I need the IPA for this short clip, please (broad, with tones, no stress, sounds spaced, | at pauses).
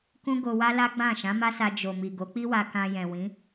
k ũ˦ ɡ o˧ w a˦ l a˦ ɡ͡b ã˦˨ ʃ ã˨˦ m a˦ s a˧ d͡ʒ o˨ m i˨ ɡ o˨˦ k͡p i˦ w a˧ k ã˧ j ɛ̃˨ w ĩ˨˦